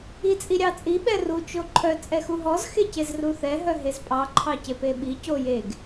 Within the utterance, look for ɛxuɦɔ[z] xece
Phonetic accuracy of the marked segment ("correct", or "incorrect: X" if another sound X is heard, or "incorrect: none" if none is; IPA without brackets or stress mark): correct